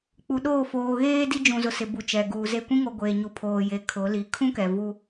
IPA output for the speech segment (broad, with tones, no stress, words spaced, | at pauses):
k͡pu˨ɗoː˦˨ foː˨ɣeː˦ di˦d͡ʒũ˨zʊ˨ sɪ˨bu˨ t͡ʃɛ˨ɡuː˨ze˦ kʷĩ˦ŋo˨ ɡʷeː˨ɲu˨pʰoː˨ je˨ kʰʊ˨˦li˨ kʰũ˦ kɛ˨vu˦